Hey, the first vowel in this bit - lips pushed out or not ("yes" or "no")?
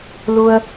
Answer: yes